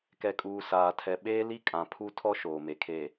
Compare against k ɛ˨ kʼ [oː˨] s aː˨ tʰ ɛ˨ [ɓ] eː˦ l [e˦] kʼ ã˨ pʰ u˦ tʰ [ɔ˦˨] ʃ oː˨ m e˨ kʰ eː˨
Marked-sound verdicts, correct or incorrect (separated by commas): incorrect, correct, incorrect, incorrect